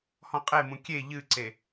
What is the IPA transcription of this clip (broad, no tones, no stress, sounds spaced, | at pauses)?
h ɔ̃ qʼ e m ũ kʲ e ʎ ɨ ǀ e